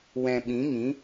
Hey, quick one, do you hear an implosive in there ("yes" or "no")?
yes